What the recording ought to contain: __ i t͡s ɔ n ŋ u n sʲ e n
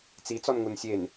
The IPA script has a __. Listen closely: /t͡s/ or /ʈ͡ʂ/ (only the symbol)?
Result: t͡s